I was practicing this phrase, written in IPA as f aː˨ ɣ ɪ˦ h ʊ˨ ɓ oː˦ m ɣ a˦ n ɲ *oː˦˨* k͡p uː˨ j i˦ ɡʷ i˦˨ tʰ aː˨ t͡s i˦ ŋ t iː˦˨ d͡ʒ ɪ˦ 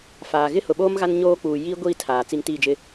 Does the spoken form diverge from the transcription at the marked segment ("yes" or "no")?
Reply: yes